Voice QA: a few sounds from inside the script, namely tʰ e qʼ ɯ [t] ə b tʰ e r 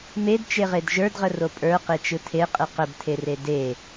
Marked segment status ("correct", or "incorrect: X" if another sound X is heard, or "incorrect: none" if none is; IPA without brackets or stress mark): incorrect: q